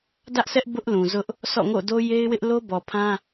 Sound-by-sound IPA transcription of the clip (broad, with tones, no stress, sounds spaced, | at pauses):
d ä˦ ʔ sʰ ɛ˦ ʔ b ʊ˦ ʔ l ũ˨ z ʊ˦ ʔ | sʰ ɔ̰˦˨ ŋ o̰˦˨ d o˦ j e˦ ɪ̯ w ɪ˦ ʔ l o˦ b ɔ˨ pʰ ã˦